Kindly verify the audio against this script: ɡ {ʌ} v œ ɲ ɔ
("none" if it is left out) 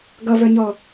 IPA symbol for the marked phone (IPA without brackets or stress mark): ʌ